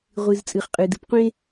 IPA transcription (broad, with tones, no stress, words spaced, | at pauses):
ʁʷɨ˩zt͡sʼɨ˩χ qʼɨ˩dɨ˩pqʷẽ˥